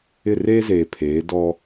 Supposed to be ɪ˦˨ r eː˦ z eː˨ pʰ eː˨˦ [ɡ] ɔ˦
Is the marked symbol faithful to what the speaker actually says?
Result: no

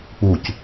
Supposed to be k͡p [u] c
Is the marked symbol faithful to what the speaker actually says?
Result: yes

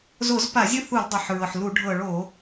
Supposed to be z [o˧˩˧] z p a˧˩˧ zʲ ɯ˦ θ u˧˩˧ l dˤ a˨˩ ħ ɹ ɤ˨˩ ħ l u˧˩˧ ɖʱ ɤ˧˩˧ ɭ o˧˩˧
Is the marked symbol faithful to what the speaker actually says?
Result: yes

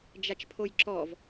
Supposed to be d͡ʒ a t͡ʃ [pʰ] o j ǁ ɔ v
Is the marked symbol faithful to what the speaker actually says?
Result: yes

